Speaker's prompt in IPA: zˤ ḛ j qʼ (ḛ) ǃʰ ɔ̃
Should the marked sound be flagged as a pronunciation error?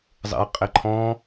yes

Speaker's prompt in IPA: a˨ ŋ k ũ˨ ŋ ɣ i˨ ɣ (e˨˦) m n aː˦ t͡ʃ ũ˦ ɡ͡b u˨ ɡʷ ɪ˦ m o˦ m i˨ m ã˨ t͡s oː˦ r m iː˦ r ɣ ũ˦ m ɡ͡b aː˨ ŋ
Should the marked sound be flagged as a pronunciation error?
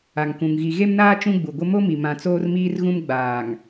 yes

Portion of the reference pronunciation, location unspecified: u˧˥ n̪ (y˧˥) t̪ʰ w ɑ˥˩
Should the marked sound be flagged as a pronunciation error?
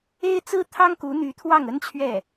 no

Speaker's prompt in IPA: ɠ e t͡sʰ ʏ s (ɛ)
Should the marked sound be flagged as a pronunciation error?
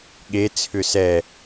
no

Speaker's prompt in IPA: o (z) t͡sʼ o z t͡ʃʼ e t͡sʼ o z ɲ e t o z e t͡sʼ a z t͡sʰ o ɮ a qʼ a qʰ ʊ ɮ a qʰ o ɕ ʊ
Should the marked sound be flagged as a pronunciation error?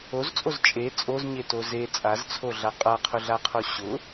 no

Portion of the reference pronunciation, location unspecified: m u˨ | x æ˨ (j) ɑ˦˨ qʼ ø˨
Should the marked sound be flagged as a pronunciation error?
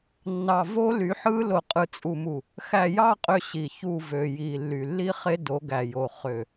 no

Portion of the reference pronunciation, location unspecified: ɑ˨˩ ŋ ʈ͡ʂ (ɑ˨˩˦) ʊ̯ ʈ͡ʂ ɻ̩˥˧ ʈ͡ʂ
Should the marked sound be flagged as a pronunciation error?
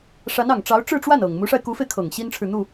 yes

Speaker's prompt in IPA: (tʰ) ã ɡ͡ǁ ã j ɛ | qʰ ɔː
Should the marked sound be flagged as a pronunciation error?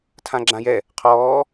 no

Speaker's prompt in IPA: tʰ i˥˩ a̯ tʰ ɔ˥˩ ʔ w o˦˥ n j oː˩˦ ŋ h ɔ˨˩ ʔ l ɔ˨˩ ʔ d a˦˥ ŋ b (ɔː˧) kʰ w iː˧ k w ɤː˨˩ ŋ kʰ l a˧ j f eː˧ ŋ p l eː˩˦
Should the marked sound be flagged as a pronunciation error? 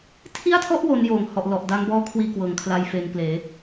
yes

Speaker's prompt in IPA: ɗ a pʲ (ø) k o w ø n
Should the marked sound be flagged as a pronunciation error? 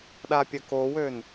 yes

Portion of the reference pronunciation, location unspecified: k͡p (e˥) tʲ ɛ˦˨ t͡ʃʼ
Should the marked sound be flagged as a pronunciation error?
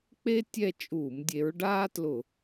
no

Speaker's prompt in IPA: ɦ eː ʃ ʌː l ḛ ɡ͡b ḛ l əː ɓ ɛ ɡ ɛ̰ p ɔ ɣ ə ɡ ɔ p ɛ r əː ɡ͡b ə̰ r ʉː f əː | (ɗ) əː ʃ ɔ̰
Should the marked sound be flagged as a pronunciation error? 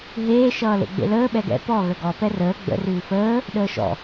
no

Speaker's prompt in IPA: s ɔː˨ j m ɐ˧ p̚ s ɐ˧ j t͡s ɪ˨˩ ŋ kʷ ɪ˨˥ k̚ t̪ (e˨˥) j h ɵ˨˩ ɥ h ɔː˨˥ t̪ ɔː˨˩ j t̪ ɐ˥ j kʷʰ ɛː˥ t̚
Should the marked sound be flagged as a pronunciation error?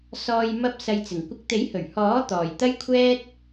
no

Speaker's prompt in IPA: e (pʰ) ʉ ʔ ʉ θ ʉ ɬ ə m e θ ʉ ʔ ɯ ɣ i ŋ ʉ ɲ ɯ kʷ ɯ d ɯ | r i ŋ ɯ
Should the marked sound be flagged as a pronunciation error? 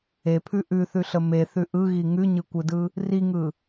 no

